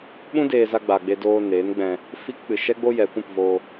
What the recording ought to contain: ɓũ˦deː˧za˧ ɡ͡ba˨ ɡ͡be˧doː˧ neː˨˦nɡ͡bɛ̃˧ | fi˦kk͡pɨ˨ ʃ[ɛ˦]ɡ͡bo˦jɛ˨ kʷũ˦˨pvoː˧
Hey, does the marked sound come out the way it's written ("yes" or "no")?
yes